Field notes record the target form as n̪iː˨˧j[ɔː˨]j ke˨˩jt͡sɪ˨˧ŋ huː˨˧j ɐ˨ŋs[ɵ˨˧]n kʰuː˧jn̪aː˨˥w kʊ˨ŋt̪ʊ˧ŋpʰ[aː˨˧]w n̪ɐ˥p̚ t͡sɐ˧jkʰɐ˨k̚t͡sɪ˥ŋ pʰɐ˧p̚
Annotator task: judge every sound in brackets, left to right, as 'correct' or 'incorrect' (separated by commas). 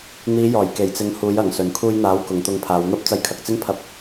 incorrect, incorrect, correct